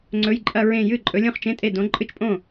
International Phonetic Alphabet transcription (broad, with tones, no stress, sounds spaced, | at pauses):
ŋ͡ǀ ɵ˧˥˧ j ǃʼ ɐ˥˧ ɹ ẽ˥˧ j ɨ˥˩ ǃʼ ɵ˨˥ lʲ õ˥˧ χ t͡ʃ ẽ˧˥˧ tʼ e˥˩ d õ˨˥ ǃʼ ɨ˥˩ t͡ʃ pʼ õ˥˩